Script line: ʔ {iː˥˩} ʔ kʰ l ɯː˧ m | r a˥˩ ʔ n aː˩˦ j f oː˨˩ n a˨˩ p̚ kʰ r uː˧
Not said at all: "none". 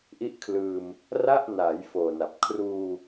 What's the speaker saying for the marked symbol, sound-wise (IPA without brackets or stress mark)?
i˥˩